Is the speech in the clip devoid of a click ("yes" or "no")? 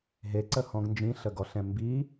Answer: no